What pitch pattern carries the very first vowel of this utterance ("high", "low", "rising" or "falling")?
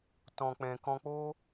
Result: low